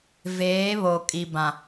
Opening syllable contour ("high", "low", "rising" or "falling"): rising